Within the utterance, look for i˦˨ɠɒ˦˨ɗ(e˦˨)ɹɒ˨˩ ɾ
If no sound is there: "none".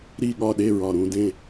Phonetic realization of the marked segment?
e˦˨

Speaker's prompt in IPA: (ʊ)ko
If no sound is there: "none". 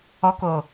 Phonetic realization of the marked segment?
ɔ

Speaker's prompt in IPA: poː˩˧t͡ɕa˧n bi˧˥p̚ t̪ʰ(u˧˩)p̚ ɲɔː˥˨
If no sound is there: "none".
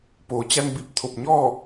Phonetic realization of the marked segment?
o˧˩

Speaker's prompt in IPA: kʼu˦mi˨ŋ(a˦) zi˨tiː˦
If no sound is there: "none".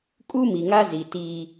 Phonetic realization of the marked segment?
a˦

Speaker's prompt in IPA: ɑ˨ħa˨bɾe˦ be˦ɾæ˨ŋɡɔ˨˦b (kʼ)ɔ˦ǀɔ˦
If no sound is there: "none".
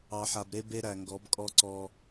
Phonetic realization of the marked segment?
kʼ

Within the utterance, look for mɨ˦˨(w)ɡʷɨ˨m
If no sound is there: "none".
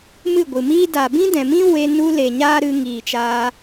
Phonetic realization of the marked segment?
none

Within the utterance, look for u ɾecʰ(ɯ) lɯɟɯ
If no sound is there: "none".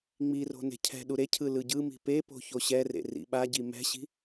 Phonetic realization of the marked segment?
ɯ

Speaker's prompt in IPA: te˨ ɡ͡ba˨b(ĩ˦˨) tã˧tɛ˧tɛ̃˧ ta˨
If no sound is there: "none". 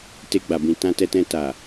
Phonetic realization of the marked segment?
ĩ˨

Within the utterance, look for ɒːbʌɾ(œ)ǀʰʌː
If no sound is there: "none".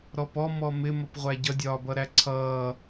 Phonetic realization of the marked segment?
æ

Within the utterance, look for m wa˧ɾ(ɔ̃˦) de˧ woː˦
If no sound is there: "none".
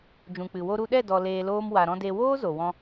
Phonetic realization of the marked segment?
ɔ̃˦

